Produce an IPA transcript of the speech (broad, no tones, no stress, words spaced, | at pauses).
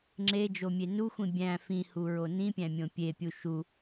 ŋ͡ǁed͡ʒomʲe nuxʷĩ bʲæ̃ fĩhuɹo nĩpʲæ̃mʲõ pʲepʲu ʃu